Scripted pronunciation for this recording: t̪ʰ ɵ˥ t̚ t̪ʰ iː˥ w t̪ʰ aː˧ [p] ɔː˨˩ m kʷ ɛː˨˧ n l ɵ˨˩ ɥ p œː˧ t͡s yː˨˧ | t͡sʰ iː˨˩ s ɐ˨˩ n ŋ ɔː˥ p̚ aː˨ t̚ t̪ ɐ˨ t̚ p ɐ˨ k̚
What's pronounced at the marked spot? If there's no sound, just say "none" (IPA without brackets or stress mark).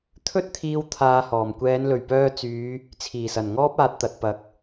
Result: h